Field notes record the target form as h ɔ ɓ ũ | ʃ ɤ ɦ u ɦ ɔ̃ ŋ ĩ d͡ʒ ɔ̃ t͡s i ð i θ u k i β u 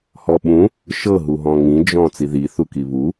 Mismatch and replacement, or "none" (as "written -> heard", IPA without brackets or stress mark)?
none